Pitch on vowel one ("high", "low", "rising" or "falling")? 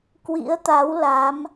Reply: rising